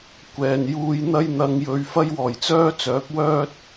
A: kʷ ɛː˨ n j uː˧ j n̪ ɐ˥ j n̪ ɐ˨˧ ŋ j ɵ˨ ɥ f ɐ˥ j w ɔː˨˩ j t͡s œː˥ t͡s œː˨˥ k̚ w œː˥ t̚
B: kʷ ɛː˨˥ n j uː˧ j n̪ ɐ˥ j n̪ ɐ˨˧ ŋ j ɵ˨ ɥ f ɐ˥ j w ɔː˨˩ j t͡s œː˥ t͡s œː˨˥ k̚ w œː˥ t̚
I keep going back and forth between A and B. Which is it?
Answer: A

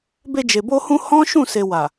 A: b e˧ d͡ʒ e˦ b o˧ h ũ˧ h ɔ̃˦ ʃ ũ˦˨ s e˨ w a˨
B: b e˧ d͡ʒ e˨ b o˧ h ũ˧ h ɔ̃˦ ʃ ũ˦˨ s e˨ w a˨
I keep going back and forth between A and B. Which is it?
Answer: B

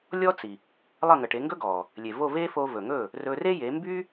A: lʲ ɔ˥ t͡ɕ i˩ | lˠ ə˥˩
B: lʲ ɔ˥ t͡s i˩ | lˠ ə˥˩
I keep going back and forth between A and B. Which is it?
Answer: B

